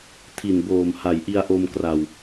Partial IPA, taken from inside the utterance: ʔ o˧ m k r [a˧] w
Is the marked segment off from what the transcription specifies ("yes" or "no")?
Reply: yes